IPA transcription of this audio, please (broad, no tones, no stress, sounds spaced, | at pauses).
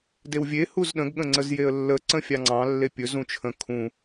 d e w vʲ e h u z ɗ ə̃ ɡ ɠ ə̃ ŋ͡ǀ ə z j e ə̯ lː ə ǀ ə̃ fʲ ɑ ŋ͡ǀ ɑ̃ lː e pʲ ɵ z ũ t͡ʃʰ ə̃ kʰ ũ